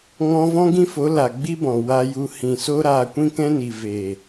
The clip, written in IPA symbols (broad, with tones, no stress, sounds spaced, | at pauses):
ŋ ɔ̃˧ v ɔ̃˦ ɡ ĩ˦ f o˨˦ l a˨ ɡ͡b i˦ b ɔ̃˨ w a˧ j u˧ h ĩ˨ s o˦ ɾ aː˧ kʷ ĩ˦ k ɛ̃˦ n i˨ v eː˨